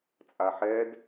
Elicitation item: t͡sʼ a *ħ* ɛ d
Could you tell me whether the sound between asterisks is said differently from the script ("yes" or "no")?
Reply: no